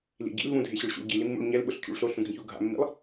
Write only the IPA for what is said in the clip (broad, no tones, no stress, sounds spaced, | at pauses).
l ḭ ɟ ḭ l v ũ dʱ e ɕ ʊ ɭ ɕ ṵ ɭ ɟ i l i mː ṵ ɭ ɲ ɛ l ɓ ʊ ɬ cʰ ṵ ɭ ɬ o ɬ ũ ɡʱ ĩ ç u ɡʱ a̰ mː ḭ lˠ